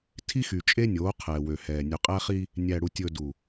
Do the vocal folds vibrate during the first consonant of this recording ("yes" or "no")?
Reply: no